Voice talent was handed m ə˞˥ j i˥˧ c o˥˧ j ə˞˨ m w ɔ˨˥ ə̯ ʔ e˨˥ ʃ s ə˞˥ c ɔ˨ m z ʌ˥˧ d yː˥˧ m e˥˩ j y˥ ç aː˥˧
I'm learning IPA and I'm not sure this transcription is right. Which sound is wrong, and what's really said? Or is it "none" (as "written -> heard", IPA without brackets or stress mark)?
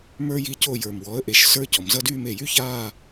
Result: none